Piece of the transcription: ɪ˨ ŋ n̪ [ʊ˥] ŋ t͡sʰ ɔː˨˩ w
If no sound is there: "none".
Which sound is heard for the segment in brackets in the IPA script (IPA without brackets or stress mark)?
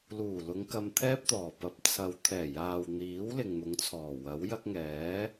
ʊ˨˧